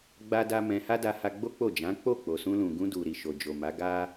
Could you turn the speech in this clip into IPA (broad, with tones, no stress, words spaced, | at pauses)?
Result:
ɡ͡ba˦da˦mɛ̃˧ ha˦da˧ha˧ ɡ͡bo˦k͡po˦˨d͡ʒã˨˦ k͡po˦˨k͡po˨sũ˧ lũ˨ɡũ˧du˨ ɾi˨ʃo˨d͡ʒo˨ma˨˦ ɡa˧